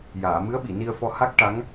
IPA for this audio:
j aː˨˩˨ m ɨ˧˥ ə̯ ɓ i˨˩˨ n i˧ ə̯ f ɔ˧ h a˦˥ k̚ ʈ a˧˥ ŋ

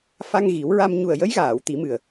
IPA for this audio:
f a˧ ŋ ɣ i˨˩˦ w ɹ a˧ m ɲ u˨˩ ə̯ j ə˧˥ j ɣ aː˨˩˨ w t̪ i˨˩˦ m ɨ˨˩ ə̯

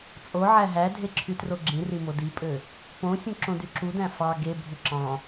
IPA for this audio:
t͡sʼ o ʕ æ ɦ æ dʱ e ǁʰ y t r o ɡ͡ǁ ĩ r i m o d i pʼ ø | p õ sʲ ũ ǁ õ d y ǁ u d æ̃ f ɑ ɡ e bʱ u ǁ ɑ̃

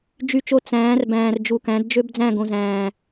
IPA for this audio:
d͡ʒ y˨ t͡ʃ o˨ t͡s æ̃ː˨˦ r b æ̃ː˨ r d͡ʒ u˨ k æ̃˨˦ d d͡ʒ ø˦ b d͡z æ̃˦˨ ɡ õ˨ z æ̃ː˨

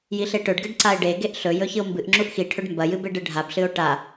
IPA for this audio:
j i ɬ e ʈ ɵ ɖ ɡ ɨ ɖ ǀ a e̯ ɖ e ɡ e ʔ ɬ ɵ j ɵ ç ɨ o̯ m b ɨ ʔ ŋ͡ǁ u ʔ x i ʈʰ ɵ ɖ m b ɐ j ɨ b e ɖ ɨ ɖʱ a b ɬ ɨ o̯ ʈ a

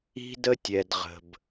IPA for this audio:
i̤˥ d ə˥ tʲ ɛ˩ d ʁ ə̤˩ b

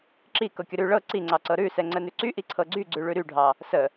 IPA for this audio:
ǁ i k ɤ kʲ ə ɾ ʉ ɭ ɤ ǀ i ŋ͡ǀ ɑ ǀ ɤ ɾ ʉ s ɛ ŋ͡ǀ ə n ʉ ǀ y ʔ i ǀʰ ɤ ɡ͡ǀ y ɡ͡ǀ ʉ ɭ ʉ ɾ y ɖʱ ɑ | s ə

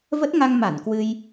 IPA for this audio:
v ə˦˥ t̚ ŋ a˧ ŋ m a˧˩ n k w ɨ˧ j

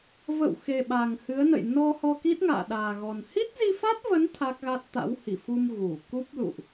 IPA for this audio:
v ə̰˧˨ w x e˨˩ ɓ a˨˩ ŋ h ɨ˨˦ ə̯ n ə̰˧˨ j n ɔ˧ h ɔ˧ k i˦˥ t̚ ŋ a̰ː˧˨ ɗ aː˨˩ ɣ ɔ˨˩ n h i˦˥ t̚ z i˧ f a˦˥ t̚ v ə˨˦ n t̪ʰ a˦˥ k̚ ɣ a˦˥ t̚ t̪ a̰˧˥ w h i˧˩ f u˧ m ɣ u˧˩ k u˦˥ p̚ l ṵ˧˨ ʔ

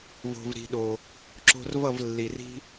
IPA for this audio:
v o̤˨ v ɾ i̤˨ ɗ o˨ | ǁ o̤˧ r v ʌ˦˨ v lː i˨ r i̤˦

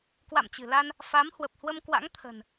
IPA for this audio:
k w a̰˧˨ m t͡ɕ ɨ̤˨˩ l a˧ n | f a˨˦ m h w ə˨˩ p̚ h w ə˧ m k w a̰˧˥ ŋ t̪ʰ ə̤˨˩ n

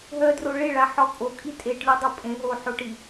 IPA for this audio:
ɦ œ d r o ɭ e ɭ a ħ ɔ kʼ o kʼ i tʼ e ʈ lʲ o dˤ o pʼ ẽ ɦ o ħ o ʈ i

